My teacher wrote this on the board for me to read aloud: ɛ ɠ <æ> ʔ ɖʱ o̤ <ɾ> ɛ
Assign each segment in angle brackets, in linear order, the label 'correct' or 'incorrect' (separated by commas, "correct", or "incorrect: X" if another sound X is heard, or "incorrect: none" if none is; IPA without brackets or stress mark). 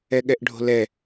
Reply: incorrect: ɛ, incorrect: l